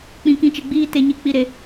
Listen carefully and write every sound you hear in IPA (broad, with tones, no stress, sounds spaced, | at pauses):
k͡p ĩ˦ k ĩ˦ t͡ʃ e˦ ɡ͡b iː˦ t e˦ ɲ i˦ k͡p i˦ ɾ e˦